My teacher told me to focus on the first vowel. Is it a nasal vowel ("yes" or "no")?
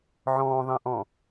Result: yes